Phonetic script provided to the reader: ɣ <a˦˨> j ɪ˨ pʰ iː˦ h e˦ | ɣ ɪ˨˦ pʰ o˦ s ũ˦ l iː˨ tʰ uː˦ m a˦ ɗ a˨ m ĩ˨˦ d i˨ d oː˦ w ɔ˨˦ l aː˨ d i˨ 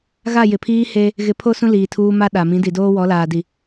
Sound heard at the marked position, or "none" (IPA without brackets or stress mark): a˦˨